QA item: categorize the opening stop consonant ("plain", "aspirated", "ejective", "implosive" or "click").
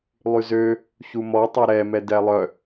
plain